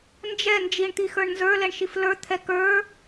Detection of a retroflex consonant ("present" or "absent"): present